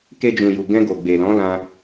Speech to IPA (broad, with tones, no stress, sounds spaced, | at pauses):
k e˧ d͡ʒ ũ˨ j u˨ ɡ ɛ̃˧ ɡ o˨ ɡ͡b e˨ l ɔ̃˨˦ l ã˧